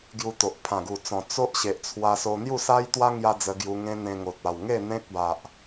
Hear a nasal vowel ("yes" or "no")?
yes